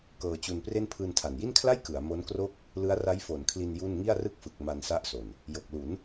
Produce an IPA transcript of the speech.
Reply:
k ɤː˧ t͡ɕ u˧ n p r e˥˩ n pʰ ɯː˧ n tʰ a˨˩ n j i˥˩ n kʰ l a˥˩ j k ɯ˩˦ a̯ m o˦˥ n k r o˥˩ k̚ | l ɯ˦˥ a̯ r a˦˥ j f o˩˦ n kʰ l i˧ n j u˥˩ n ŋ i˥˩ a̯ r ɯ˥˩ k̚ f ɯ˨˩ k̚ m a˧ n s a˦˥ ʔ s o˨˩ n | j o˨˩ k̚ l u˩˦ n

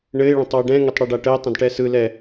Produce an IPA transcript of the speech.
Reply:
ɳ ɘ ɪ̯ ɭ ə̃ tˤ w ɘ ɖ ɛ̃ ŋ ɘ tˤ ɽ ɛ ɖ a ʈ ə ɪ̯ tˤ ə̃ d ʈ ɛ s ɯ l ɛ

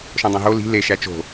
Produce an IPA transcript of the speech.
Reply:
ʃ õ dˤ õ ɦ o l i̤ l e ʃ æ t͡ʃ o̤

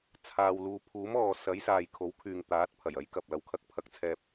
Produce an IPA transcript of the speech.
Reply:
t͡sʰ aː˨ w l uː˨ pʰ uː˨˥ m ɔː˨ s ɐ˨˥ j s aː˨ j kʰ o˨˥ w kʰ yː˨ ŋ t̪ aː˨˥ t̚ pʰ ɐ˨˩ j ɐ˨˥ j k ɐ˨ p̚ l ɐ˨˧ w kʰ ɐ˧ k̚ pʰ ɐ˧ k̚ t͡sʰ ɛː˧ p̚

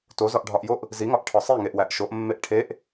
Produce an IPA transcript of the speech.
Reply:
t o z ɒ ʔ ɖʱ ɒ ʔ j o ʔ | z i ŋ ɒ ʔ ʈʰ ɒ sˤ i ŋ e ʔ w æ ʔ ʃ o ʔ mː e ʔ ʈʰ e ʔ

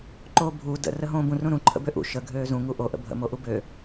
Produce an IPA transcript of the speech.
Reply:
ǃ oː bʱ u d ə̰ r ə ɦ õː b ũ r ũ ɾ ũ ǃʰ ə̰ b ø ʔ ṵ ʃ ə ɡʱ øː z ũ ŋ u ʔ o ʔ ə̰ bʱ ə̰ m o ʔ u b ø

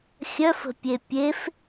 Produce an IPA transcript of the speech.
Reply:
xʲ œ f ə̤ pʲ e pʲ e f

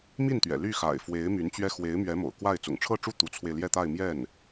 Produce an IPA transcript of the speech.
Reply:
m i˥˩ n t̪ ɥ ɛ̰˨˩ l y˥˩ x a̰˨˩ ɪ̯ f w e˧˥ ɪ̯ m y˧˥ n t͡ɕ ɥ ɛ˥ x w e˧˥ ɪ̯ m ɥ ɛ˧˥ m o̰˨˩ ʊ̯ k w a˥˩ ɪ̯ t͡s ʊ̰˨˩ ŋ ʈ͡ʂʰ ɤ˥˧ ʈ͡ʂ u˥˩ t̪ u˧˥ t͡sʰ w e˧ ɪ̯ l j ɛ˥˧ t̪ a˥˧ ɪ̯ m j ɛ˥˩ n

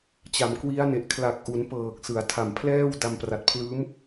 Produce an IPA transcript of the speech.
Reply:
t͡ɕ a˩˦ m k w i˦˥ a̯ n e˨˩ ʔ kʰ l a˨˩ k̚ ʔ u˩˦ n p ɤː˨˩ k̚ s ɯ˩˦ a̯ tʰ a˨˩ m pʰ l ɛː˥˩ w d a˧ m p r a˨˩ t̚ pʰ l ɯː˦˥ m

